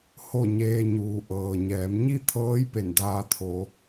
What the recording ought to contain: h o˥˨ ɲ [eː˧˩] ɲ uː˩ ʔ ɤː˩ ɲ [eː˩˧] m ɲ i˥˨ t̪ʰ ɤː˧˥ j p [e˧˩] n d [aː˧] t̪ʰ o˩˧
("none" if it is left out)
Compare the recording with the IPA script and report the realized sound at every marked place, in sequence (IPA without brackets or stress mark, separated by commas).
eː˧, ɛː˩˧, e˧˩, aː˧